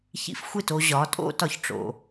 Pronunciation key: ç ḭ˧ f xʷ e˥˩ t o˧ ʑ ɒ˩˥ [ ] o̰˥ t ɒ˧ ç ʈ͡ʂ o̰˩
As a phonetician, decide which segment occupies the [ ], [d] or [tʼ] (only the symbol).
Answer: tʼ